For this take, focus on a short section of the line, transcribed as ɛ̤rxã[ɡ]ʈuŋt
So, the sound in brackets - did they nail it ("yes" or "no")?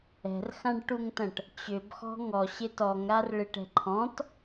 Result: no